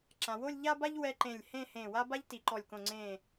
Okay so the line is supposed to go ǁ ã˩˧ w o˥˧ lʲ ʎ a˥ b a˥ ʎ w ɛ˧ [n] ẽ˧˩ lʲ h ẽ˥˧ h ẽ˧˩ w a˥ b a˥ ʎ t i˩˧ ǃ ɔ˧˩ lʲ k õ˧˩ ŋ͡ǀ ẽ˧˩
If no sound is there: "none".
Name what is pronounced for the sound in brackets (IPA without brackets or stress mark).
ǃ